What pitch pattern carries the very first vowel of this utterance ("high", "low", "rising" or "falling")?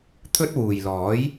high